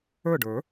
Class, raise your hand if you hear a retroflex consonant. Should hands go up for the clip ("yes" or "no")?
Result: yes